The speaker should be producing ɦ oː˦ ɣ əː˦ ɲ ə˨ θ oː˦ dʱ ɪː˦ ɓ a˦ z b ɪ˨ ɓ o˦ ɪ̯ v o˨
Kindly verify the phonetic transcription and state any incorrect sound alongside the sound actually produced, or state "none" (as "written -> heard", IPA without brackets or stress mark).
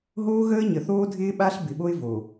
z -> ɬ